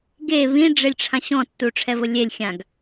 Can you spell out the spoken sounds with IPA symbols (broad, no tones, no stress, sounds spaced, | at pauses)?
ɡ e β ĩ ɖ͡ʐ e lʲ ʈ͡ʂʰ ã ɕ ɔ̃ tː u ʈ͡ʂʰ ɛ v ʊ lʲ e lʲ xʲ ã ɡ